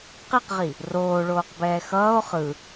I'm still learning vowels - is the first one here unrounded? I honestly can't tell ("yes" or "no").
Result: yes